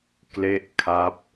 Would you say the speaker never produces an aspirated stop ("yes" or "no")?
no